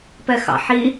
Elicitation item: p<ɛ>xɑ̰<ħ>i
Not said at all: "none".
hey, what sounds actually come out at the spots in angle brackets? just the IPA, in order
ɛ, ħ

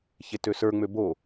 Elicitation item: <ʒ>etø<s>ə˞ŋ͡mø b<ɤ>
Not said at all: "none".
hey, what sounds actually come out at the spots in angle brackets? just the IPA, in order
ç, s, o

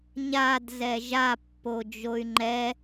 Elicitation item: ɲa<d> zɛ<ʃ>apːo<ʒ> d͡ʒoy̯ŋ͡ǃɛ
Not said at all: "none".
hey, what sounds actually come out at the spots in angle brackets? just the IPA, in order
d, ʒ, none

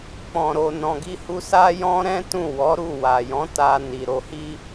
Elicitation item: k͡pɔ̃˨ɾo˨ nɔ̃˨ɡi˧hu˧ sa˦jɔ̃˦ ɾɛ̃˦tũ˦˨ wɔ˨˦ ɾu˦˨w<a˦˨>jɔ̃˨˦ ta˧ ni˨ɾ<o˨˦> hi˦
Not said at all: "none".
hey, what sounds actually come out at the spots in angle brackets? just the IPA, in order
a˨, o˨˦

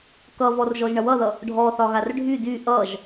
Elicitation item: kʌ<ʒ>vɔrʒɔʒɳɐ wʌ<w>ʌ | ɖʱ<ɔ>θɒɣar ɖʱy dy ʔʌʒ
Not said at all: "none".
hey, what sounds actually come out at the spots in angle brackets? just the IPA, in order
none, ð, ɔ

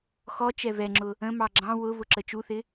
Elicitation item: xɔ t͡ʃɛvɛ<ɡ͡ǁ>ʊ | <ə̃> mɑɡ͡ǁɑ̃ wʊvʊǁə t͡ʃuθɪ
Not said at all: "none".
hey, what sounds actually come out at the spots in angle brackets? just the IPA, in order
ŋ͡ǁ, ə̃

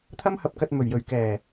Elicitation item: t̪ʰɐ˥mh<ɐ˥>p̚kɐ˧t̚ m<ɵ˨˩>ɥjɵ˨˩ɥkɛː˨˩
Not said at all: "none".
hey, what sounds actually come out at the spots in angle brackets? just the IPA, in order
ɐ˧, ɵ˨˩

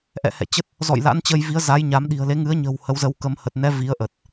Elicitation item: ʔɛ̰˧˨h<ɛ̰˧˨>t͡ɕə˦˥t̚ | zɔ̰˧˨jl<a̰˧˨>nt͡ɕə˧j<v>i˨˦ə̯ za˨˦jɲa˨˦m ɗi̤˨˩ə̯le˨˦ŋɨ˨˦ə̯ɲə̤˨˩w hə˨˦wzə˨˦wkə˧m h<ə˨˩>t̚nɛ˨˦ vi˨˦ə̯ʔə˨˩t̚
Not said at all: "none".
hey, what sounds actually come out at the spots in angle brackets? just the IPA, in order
ɛ̰˧˨, a̰˧˥, v, ə˨˩

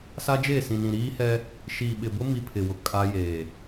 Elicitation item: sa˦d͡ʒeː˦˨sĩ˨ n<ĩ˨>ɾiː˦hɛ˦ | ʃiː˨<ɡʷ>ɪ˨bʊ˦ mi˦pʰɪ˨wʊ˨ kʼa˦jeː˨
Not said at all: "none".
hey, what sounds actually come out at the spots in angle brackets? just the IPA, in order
ĩ˨, ɓ

